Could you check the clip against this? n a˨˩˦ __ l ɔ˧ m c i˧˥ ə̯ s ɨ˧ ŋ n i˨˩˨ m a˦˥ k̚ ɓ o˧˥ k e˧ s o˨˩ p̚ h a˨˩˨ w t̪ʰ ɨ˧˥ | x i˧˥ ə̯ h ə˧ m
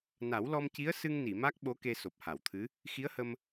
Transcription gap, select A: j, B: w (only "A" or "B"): B